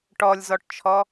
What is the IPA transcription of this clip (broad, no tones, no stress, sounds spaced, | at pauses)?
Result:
ʈ ɔ lʲ z ɔ ʈ t͡ʃʰ ɔ